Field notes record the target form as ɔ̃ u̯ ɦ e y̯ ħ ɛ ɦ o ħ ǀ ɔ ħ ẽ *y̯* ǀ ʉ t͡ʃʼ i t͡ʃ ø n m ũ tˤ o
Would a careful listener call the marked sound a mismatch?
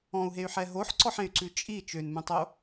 no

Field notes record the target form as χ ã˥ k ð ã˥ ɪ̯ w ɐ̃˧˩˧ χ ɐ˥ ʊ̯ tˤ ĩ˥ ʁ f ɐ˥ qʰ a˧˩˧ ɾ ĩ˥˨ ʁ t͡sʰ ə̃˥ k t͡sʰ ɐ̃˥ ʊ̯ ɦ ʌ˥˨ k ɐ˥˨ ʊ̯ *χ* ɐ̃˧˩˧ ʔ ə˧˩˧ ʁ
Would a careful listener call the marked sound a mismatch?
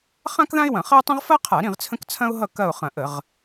no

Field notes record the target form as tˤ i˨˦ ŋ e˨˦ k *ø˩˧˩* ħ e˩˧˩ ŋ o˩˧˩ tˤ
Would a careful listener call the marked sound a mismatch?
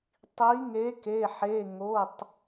yes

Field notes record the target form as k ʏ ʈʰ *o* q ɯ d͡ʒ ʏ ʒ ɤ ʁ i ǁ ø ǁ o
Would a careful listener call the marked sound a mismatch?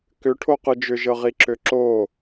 no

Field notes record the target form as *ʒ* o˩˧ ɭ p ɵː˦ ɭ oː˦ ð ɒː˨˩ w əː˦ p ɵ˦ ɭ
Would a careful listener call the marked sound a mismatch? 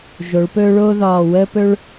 no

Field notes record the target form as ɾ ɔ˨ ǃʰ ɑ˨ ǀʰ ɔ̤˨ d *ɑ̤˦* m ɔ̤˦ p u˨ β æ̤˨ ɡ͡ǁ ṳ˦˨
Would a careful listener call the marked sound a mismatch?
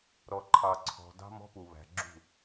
no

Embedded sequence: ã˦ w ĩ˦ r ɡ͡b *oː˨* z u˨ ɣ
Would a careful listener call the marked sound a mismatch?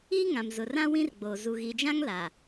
no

